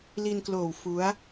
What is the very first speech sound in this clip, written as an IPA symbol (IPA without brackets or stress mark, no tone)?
l